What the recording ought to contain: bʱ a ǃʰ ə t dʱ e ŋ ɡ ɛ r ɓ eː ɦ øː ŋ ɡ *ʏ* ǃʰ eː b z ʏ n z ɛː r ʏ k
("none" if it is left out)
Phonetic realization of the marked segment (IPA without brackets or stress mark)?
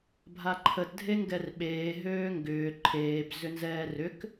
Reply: ʏː